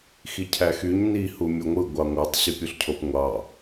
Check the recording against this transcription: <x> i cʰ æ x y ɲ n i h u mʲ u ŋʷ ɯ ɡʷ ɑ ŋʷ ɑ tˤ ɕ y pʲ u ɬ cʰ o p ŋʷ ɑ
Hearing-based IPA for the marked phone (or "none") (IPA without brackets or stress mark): x